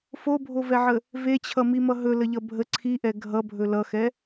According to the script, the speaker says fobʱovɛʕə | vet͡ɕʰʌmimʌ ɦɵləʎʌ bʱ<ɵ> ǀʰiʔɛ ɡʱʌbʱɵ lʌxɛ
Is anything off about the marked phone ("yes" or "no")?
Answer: yes